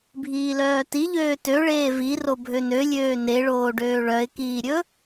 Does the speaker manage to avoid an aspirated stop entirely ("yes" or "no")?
yes